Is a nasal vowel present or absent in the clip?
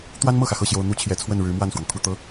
absent